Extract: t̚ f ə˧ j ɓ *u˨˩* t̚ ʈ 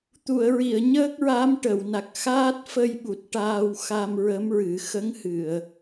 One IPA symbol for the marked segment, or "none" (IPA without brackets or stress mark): u˨˩